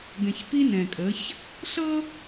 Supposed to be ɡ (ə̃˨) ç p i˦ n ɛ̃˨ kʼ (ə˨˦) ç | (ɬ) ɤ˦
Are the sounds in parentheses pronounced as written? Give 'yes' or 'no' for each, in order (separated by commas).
no, yes, yes